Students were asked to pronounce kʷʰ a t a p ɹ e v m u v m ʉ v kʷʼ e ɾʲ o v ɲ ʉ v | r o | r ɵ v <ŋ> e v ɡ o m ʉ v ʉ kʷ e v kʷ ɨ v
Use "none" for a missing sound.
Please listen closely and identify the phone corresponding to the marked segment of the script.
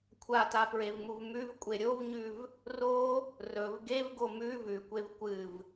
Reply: ɡ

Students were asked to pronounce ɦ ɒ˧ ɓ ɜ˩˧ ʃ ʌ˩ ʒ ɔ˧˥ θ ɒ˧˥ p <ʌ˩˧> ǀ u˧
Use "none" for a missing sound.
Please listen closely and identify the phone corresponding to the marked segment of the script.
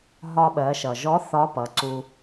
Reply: ʌ˩˧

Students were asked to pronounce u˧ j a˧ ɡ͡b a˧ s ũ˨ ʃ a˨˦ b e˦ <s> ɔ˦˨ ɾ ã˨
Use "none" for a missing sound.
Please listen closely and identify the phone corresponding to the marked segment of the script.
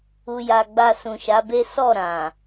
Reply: s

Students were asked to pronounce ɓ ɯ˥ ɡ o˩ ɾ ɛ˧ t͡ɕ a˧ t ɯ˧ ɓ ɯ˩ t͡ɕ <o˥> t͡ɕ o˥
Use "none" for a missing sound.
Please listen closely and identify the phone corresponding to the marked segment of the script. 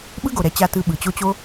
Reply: o˥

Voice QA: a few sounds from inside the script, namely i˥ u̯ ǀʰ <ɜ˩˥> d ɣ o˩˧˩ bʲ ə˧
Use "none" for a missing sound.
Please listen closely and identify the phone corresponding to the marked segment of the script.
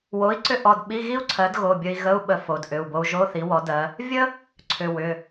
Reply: ɜ˩˥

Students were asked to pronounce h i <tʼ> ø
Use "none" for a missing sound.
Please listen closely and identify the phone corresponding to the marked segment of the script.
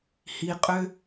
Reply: qʼ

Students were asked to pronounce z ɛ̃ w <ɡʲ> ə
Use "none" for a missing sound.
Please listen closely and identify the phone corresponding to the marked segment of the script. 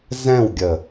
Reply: ɡʲ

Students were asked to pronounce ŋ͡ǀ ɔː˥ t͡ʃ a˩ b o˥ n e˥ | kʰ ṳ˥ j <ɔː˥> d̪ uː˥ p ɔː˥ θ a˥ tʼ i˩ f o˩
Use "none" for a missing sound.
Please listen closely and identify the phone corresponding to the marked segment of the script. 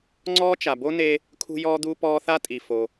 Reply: ɔː˥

